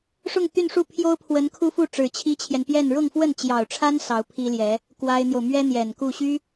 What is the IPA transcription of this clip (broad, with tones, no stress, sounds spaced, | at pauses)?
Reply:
ʂ ʊ˥˧ ŋ t̪ y˥˧ n ʂ u˥˩ pʰ j o˥ ʊ̯ pʰ w ə˧˥ n kʰ u˥ f u˥˩ ʈ͡ʂ ɻ̩˨˩ t͡ɕʰ i˥ t͡ɕʰ j ɛ˨ n p j ɛ˥˧ n ɻ ʊ˥˧ ŋ f w ə˥˩ n t͡ɕ j ɑ˨˩ ʊ̯ ʈ͡ʂʰ a˥ n s ɑ˧˥ ʊ̯ pʰ i˥ l j ɛ˧˥ | k w a˥ ɪ̯ n̪ j o˨ ʊ̯ m ɥ ɛ˥ n̪ j ɛ˨˩ n k u˥˩ ɕ y˥